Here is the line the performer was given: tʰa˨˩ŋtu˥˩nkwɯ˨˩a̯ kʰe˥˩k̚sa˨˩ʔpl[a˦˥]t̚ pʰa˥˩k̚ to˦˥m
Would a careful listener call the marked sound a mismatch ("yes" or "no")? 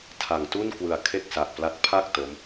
no